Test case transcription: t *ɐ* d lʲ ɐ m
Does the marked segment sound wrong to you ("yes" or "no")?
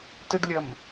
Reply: yes